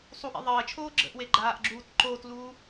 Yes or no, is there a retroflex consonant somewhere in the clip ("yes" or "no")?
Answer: no